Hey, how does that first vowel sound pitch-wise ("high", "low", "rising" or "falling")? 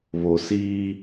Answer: low